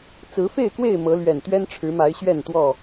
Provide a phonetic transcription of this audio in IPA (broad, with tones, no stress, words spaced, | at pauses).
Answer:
t͡sɹ̩˨˦fe˥˨ɪ̯kwe˥˨ɪ̯ mɤ˨˦lɥɛ˨˩n t̪ɥɛ˦nʈ͡ʂʰɻ̩˨˦ma˨˦ɪ̯ ɕɥɛ˥˨nt̪wɔ˥˨